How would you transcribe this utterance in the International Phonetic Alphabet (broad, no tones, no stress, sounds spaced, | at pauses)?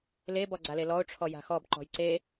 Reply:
l e b ɔ ɡ͡ǀ a l e l ɔ ʊ̯ ʈ͡ʂʰ ɔ j a̤ x ɔ b ǃ ɔ̤ j ǀ e